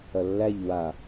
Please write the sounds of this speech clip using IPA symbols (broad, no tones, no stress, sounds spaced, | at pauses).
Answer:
ɐ lː æ ʎ w a